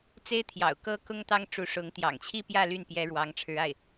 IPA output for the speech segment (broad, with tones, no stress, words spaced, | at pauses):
t͡se˥ɪ̯ t̪ʰjɑ̰˨˩ʊ̯kɤ˥kʊ˥ŋ t̪ɑ˥ŋʈ͡ʂu˧˥ʂʊ˧˥ŋ t̪jɑ̰˨˩ŋt͡ɕʰi˥˧pjä˥˧ ly˥˩n pjɛ˥ɻwɑ˧˥ŋʈ͡ʂʰɻ̩˧˥ a˥˩ɪ̯